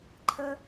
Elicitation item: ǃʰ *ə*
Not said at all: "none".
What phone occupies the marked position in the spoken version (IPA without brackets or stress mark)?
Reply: ə